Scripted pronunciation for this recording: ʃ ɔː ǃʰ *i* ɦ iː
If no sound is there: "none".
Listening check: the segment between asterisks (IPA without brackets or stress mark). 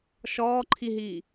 i